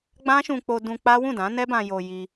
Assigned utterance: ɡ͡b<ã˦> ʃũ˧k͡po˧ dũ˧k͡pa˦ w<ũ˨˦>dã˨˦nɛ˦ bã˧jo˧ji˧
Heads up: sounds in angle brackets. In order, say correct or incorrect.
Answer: correct, incorrect: ũ˦˨

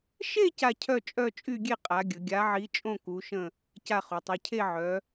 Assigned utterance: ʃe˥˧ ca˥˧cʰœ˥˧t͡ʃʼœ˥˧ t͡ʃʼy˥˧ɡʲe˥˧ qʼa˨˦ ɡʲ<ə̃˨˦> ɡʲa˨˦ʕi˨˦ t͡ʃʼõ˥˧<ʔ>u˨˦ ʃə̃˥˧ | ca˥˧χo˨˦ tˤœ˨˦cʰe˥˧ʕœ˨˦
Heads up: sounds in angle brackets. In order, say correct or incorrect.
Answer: incorrect: ə˨˦, incorrect: k

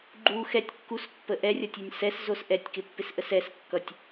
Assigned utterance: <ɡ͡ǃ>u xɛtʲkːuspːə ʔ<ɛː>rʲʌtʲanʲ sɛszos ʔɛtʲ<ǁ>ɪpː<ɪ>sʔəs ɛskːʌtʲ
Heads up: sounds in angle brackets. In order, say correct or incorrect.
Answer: correct, incorrect: ɛ, incorrect: k, correct

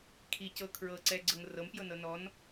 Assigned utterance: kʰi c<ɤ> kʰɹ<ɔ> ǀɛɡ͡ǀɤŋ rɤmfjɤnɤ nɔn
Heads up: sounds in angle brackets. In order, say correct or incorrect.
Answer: correct, incorrect: ɤ

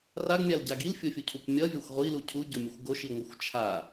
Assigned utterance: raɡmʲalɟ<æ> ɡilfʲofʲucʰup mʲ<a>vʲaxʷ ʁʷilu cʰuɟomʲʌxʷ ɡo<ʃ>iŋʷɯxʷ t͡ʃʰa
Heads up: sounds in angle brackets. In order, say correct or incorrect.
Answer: incorrect: a, incorrect: ʌ, correct

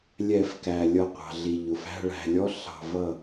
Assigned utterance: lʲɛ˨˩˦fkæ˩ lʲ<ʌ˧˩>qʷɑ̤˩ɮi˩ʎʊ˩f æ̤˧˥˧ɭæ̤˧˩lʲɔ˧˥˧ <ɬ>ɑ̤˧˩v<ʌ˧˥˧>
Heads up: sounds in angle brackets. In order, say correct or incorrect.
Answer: correct, correct, incorrect: ʌ˥˩

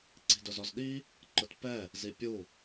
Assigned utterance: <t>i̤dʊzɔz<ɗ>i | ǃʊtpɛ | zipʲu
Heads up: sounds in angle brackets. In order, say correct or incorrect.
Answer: incorrect: ǀ, correct

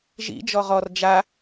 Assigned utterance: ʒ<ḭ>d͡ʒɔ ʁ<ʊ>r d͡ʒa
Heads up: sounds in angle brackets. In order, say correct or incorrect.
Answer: correct, incorrect: ɔ

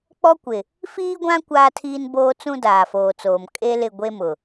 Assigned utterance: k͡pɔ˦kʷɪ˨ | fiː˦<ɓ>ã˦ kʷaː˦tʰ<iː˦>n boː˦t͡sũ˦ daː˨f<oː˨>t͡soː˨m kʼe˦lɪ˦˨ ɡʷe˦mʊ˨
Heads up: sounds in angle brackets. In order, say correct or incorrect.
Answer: incorrect: ɡʷ, correct, correct

